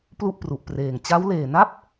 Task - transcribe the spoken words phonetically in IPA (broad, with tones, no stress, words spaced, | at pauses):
plu˥˩ʔpru˨˩ʔpreː˨˩ŋ t͡ɕa˦˥wleː˨˩na˥˩p̚